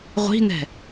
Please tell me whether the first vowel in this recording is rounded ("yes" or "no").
no